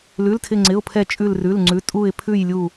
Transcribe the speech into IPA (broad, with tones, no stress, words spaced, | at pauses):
lʉ˧˥˧ltʰɪ˥˧ŋ͡ǀɪ˧˥˧ʊ̯pʰɛ˥˧ t͡ʃʼʉ˥˧lrʉ˧˥˧lŋ͡ǀʉ˧˥˧ tʼu˥˧ɪ̯ pʰʉ˥˧j lʲu˥˧